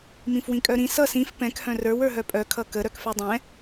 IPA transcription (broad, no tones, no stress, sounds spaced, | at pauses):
m ĩ f w ĩ kʼ œ ɾ ĩ s ʌ s ĩ f p ɛ̃ k h œ̃ r ə˞ w ə˞ ɦ œ pʼ œ kʰ ʌ k ə ɾ œ k f ɛ dˤ ɛ̃